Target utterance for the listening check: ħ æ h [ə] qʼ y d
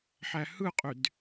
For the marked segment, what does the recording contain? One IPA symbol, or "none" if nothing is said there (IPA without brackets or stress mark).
ɯ